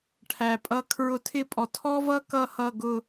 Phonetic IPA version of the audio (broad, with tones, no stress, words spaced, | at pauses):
ʈʰæ˨pʼʌ˧˥kʰɹʊ˧˥tʰɪ˥˧ pʼɔ˨tʰɔ˥vʌ˥ kʌ˥hʌ˥˧ɡʊ˥˧